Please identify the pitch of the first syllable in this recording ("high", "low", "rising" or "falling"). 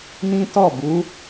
high